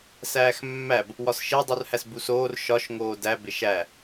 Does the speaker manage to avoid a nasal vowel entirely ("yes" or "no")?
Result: yes